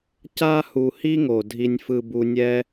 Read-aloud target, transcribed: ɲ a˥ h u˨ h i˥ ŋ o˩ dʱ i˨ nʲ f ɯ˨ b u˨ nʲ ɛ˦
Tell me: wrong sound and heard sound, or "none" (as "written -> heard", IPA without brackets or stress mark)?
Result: ɲ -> c